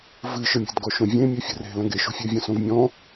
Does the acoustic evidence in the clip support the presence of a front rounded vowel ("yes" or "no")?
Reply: no